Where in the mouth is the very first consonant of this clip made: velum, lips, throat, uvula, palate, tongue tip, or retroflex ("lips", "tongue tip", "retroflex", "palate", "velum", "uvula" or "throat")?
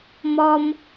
lips